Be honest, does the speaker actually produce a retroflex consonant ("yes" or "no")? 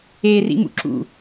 no